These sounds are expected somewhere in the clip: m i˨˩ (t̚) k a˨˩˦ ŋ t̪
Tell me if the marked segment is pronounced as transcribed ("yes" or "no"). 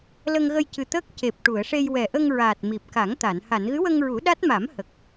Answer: no